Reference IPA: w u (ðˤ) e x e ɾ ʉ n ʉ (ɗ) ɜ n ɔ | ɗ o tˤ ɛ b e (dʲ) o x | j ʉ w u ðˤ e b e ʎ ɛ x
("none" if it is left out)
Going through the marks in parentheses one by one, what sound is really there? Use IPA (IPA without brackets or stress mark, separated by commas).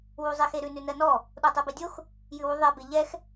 zˤ, n, dʲ